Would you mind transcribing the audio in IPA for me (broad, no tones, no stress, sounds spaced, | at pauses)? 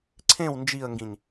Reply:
ǀʰ ẽ w n d͡ʒ i ə̯ ŋ ɡ ĩ ɲ